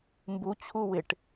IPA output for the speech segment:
m b u t͡ɕʰ u w ɪ ʈ

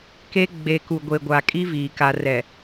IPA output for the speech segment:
k e˦ ɡ͡b e˨ k u˨ ɡʷ e˨ ɡʷ a˨ kʼ i˦ v iː˨ k a˨ r ɛ˨

